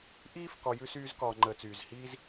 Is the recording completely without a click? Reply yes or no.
no